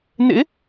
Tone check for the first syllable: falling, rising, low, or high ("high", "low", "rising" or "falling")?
rising